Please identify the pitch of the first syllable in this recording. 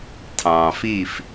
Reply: low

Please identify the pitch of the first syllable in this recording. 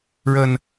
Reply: low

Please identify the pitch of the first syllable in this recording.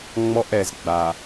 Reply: high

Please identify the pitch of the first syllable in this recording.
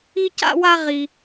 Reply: high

